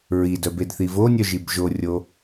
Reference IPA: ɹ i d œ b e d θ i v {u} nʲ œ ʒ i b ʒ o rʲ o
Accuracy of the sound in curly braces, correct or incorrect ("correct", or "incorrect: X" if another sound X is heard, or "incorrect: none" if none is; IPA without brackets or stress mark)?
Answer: incorrect: o